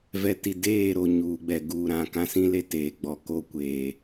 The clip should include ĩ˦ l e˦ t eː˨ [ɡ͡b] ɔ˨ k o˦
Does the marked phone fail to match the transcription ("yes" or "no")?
no